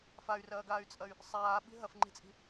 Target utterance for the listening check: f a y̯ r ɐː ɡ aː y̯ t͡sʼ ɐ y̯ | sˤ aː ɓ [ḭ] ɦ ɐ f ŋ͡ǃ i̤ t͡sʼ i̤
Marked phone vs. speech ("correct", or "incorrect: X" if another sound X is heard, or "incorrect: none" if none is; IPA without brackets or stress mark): incorrect: i̤